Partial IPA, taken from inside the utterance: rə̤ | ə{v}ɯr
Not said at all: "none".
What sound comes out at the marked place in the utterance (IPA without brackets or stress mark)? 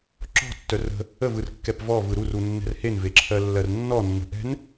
v